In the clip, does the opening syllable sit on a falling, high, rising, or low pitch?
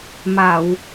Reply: low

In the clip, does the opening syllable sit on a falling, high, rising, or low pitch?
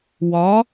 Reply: rising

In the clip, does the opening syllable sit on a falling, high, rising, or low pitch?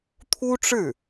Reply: high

